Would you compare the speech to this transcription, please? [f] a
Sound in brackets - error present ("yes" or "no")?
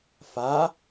no